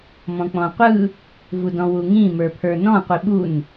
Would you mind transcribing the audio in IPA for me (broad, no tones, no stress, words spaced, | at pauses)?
mɔ̃k͡pɔ̃qʷɯ | vudɔ̃wuŋĩ mə˞pʰə˞nɔ̃ qʷiɓun